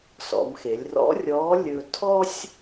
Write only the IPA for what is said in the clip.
s ɔ̰˩˧ m x e˩˧ lʲ r ɔ̰˧˥ rʲ ɔː˧˥ lʲ ɵː˧ tʰ ɔ˥ sʲ

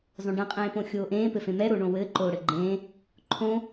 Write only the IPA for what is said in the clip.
zˤ õ ɖ ẽ qʼ ẽː p õ xʲ oː ʔ ẽː p ɘ f ẽ m ɛ ɾ o ɳ õ w ɘː ǃ oː ɽ ɘ ɡ͡ǃ ẽː | ǃʰ õ

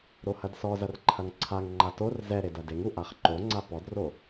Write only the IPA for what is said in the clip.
ɾ o h ɐ d s ɔ z ɐ r ǃʰ ɐ ŋ ǀʰ a ŋ ŋ͡ǃ a t o r z ɛ ɾ e d ɐ d e ŋ u ʔ a χ ǃ o ŋ͡ǀ a p ɔ d r o

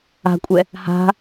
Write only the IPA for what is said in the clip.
a̤ kʷʼ ɛ | h a̤

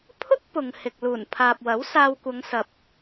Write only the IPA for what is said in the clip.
pʰ ʊ˥ k̚ p ʊ˨ ŋ h ɪ˨ k̚ l uː˨˩ n pʰ aː˨ p̚ w ɐ˨˥ w s aː˧ w kʷ ɐ˨˧ ŋ s ɐ˨ p̚

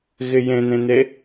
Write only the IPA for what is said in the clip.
ɣ ɪ j ẽ n ẽ n e

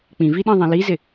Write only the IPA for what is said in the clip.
k͡p ĩ v i ɗ ĩ ðˤ ẽ l i z ɪ

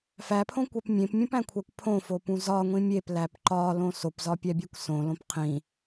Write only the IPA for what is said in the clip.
f æ pʰ õ kʷ æ p mʲ ẽ p mʲ ũ p æ̃ kʷʰ æ kʷ pʰ õ f o p ũ z ɒ ŋʷ ĩ mʲ e p l æ p ǃ ɒ l õ s o p z ɒ pʲ æ bʲ e kʷ s õ l õ p qʰ ĩ

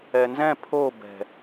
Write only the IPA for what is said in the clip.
ɛ n z ɛ̃ pʰ o b ɛ̤

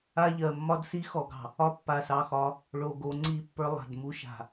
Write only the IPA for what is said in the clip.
a˦ ʎ ɜ˨ mː ɒ˦ d s i˦ x ɔ˨ ɡ ɑ̤˨ | ɒ˦ pː a˨ s ɑ˨ x ɒ˨˦ | ɭ o˨ ɡ o˨˦ ŋ͡ǀ i˦˨ pː ə˞˦ lˠ a̤˨ d m u˦ ʃ a̤˨

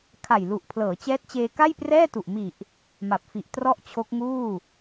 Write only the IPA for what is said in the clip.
kʰ a˨˩ j l u˨˩ ʔ pʰ l ɤː˩˦ t͡ɕ ɛː˦˥ t̚ t͡ɕ eː˧ k a˥˩ j p r ɛː˥˩ t u˨˩ ʔ m i˨˩ ʔ | m a˨˩ p̚ f i˨˩ ʔ t r ɔ˥˩ ʔ t͡ɕʰ o˦˥ k̚ ŋ uː˥˩

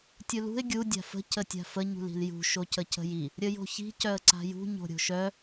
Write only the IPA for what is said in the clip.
tʲ u l ṳ ɪ̯ ɡʲ u dʲ a̤ f ə̤ c ə tʲ a̤ f ə ɲ ṳ l i̤ l j ṳ ʃ o c ə c ə̤ j i | ɾʲ ə j o̤ ç i̤ c œ ə̯ ǀ a̤ j ṳ ɲ o̤ ɾʲ o̤ ʃ œ

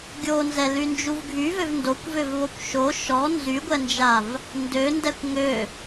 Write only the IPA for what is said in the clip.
ɡʲ o n z ɛ l y n d͡ʒ u v ɡʱ y v ø v n d o kʷ v ø v β o kʷ ʃ o ʃ ɔ n z y ɡʷ ɛ n d͡ʒ a v | n d ø n d ɛ kʷ ŋ ø

